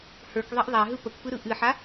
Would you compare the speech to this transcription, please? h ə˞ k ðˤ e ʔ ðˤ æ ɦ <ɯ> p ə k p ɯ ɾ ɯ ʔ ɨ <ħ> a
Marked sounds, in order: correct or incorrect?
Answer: correct, correct

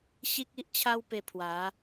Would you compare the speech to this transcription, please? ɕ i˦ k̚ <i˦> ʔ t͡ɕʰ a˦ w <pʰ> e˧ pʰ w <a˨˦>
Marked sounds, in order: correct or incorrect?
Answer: correct, incorrect: p, correct

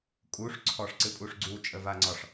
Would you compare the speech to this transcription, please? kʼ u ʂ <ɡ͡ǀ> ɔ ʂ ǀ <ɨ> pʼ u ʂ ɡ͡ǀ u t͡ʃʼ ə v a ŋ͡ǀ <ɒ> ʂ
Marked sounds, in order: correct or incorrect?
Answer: incorrect: ǀʰ, correct, correct

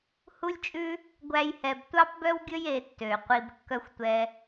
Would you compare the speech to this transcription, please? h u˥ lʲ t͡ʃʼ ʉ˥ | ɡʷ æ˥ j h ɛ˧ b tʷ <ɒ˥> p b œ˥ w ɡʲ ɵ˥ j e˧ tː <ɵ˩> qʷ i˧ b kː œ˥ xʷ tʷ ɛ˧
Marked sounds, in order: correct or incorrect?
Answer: incorrect: ɑ˥, incorrect: ø˩

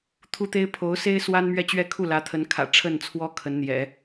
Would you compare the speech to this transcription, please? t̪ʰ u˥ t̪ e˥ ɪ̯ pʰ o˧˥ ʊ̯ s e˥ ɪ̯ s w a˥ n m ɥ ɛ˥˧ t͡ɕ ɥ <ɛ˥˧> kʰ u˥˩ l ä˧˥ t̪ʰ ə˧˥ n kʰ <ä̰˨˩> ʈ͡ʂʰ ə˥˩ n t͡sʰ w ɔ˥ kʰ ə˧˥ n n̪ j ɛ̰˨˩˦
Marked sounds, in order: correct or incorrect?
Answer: correct, correct

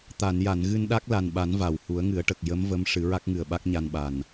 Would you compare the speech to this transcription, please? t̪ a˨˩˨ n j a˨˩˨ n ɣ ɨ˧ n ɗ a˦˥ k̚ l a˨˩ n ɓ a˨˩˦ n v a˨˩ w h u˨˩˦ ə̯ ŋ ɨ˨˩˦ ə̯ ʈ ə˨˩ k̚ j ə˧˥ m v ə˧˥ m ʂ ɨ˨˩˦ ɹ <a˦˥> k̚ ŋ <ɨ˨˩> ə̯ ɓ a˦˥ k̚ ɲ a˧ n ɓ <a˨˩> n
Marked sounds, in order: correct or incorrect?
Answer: correct, correct, correct

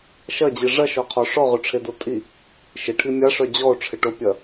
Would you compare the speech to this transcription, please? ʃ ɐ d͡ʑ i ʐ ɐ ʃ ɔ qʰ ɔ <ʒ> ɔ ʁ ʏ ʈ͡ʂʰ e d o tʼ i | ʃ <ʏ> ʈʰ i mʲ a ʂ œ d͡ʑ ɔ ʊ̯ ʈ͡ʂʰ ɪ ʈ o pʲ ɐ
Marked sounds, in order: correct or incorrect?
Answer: incorrect: ʂ, incorrect: ɪ

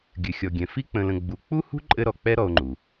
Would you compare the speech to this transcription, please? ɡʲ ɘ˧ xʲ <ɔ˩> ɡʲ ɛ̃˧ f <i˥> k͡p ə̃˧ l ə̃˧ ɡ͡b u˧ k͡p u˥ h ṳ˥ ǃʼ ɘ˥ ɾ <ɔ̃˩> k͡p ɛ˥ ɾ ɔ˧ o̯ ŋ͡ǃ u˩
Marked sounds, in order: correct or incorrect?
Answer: incorrect: ɔ˧, correct, incorrect: ɔ˩

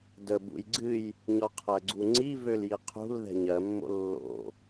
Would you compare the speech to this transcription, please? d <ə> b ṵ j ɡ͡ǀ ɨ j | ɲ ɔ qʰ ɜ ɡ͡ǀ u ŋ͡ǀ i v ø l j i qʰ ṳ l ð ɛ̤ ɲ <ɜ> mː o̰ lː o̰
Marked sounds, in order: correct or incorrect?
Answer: correct, correct

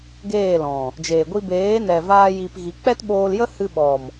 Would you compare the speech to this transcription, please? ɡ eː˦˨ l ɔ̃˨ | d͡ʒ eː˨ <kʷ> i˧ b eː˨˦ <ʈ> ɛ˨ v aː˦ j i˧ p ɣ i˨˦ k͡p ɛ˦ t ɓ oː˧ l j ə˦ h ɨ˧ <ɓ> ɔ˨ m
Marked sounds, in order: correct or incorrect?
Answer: incorrect: ɡʷ, incorrect: n, correct

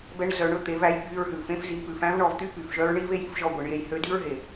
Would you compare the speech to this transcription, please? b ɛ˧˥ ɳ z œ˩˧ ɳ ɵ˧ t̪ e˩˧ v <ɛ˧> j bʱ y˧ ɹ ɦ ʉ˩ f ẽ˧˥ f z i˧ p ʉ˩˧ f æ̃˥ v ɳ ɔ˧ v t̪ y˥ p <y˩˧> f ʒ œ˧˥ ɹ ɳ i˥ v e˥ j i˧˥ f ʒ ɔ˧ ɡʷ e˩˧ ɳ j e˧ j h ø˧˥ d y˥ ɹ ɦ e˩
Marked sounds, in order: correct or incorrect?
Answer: incorrect: æ˧, incorrect: y˩

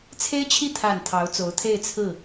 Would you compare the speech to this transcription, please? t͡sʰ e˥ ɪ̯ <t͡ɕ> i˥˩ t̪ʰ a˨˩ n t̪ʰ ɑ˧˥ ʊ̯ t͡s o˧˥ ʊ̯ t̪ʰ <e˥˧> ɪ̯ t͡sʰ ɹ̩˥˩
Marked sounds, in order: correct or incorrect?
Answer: incorrect: t͡ɕʰ, correct

